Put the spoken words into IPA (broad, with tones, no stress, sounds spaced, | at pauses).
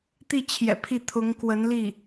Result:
t̪ i˥˩ t͡ɕʰ j ɛ̰˨˩ pʰ i˥˩ t̪ʰ ʊ˧˥ ŋ k w ə˧˥ n l i˥˩